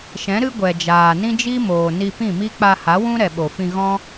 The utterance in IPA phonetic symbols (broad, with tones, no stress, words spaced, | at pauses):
ʃɛ̃˨˦ɾɨ˦ ɡʷɛ˨ d͡ʒaː˨nĩ˦d͡ʒi˦moː˨ ni˧pĩ˦˨mi˦ k͡pa˧ha˨˦wũ˦ɾɛ˨ ɓo˨fĩ˧ ɣɔ̃˦